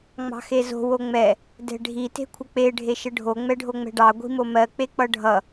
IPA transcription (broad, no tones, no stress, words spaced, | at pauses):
ŋ͡mɑ̤xezo̤ woŋ͡mɛ | dɛ̤ɖʱi te̤kʷʰək͡pe ɖʱeʃəɖʱo ŋ͡mɛɖʱoŋ͡mɛ̤ɖɑ ɡʷi̤momɜ k͡pek͡pʌɖʱʌ